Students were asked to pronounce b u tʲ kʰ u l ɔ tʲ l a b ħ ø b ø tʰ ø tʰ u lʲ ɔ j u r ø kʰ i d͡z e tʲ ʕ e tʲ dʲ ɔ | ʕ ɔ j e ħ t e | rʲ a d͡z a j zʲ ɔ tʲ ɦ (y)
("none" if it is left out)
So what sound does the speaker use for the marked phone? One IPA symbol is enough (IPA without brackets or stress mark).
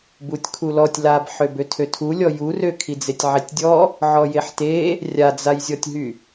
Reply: y